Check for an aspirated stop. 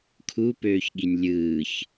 present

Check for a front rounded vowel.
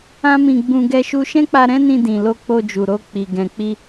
absent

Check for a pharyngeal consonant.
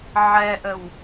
present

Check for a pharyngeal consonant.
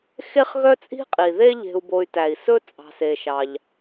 absent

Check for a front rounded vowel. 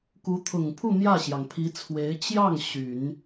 present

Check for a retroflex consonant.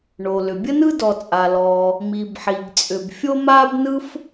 present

